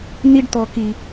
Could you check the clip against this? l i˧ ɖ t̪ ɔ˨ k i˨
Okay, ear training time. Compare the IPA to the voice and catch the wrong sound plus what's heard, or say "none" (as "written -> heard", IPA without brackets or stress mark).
l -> n